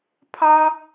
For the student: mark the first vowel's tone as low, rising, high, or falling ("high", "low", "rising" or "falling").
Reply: high